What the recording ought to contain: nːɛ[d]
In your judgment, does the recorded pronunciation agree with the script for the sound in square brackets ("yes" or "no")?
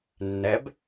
no